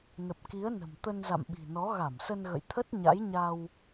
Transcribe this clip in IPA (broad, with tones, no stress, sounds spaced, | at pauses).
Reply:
n ə˨˩ p̚ k i˨˦ ə̯ n ə̤˨˩ m t̪ ə˧ n z a̰˧˨ m ɓ i̤˨˩ n ɔ˨˦ ɣ a˧˩ m s ə˧ n ɣ ə̰˧˨ j t̪ʰ ə˦˥ t̚ ɲ a̰˧˥ j ɲ a˧ w